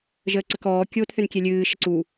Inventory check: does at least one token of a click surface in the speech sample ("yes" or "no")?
yes